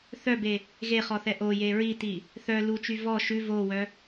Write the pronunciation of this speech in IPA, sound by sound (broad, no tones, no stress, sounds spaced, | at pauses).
θ œ b e | ɣ e χ ɔ θ ɛ ʔ o j e ɹ i t i | θ œ l u t͡ʃ y v ɔ ʃ ʉ v o w œ